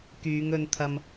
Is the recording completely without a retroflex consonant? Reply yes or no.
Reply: yes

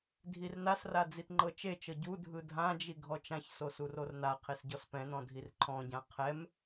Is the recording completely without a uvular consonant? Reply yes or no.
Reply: no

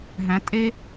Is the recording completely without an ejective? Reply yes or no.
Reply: no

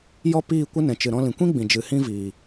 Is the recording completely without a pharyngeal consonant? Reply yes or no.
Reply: yes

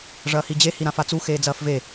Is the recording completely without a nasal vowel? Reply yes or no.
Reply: no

